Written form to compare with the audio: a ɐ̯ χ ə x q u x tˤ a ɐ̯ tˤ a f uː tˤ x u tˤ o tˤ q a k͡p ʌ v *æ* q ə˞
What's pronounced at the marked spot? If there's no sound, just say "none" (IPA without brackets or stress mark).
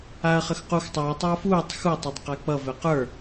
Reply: ɛ